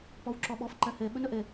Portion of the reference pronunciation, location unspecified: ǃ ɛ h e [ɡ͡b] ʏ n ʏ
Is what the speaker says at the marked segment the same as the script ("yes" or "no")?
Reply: no